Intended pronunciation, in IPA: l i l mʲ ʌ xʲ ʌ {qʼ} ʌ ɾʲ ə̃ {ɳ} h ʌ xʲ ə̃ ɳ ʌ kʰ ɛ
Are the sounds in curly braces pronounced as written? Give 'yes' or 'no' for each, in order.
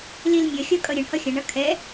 no, yes

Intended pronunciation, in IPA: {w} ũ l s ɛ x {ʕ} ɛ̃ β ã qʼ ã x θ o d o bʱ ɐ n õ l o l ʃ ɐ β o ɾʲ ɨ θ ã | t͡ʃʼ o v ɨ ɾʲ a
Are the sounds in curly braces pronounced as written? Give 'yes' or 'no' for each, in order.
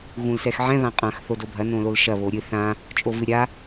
no, yes

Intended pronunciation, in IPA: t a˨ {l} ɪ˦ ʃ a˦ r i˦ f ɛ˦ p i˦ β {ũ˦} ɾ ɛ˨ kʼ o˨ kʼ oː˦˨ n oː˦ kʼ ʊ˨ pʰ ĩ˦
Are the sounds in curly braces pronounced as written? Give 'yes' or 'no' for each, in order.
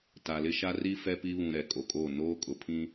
yes, no

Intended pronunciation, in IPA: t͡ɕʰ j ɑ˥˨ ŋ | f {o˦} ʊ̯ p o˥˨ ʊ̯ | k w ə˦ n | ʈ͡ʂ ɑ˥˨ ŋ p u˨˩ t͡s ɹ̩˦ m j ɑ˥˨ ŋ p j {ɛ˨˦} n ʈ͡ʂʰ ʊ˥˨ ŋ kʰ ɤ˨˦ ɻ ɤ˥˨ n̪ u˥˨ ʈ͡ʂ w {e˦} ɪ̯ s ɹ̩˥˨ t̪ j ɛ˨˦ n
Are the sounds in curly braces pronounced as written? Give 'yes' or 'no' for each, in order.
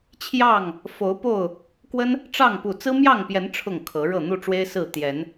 no, yes, yes

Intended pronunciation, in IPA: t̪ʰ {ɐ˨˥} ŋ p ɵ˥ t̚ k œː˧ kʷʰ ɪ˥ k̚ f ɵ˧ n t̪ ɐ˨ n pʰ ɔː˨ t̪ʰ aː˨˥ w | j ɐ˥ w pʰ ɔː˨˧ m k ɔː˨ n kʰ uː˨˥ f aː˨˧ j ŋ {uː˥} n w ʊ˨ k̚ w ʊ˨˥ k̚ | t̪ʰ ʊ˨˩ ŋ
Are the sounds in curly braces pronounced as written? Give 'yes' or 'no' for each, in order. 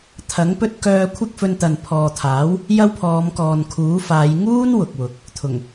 yes, yes

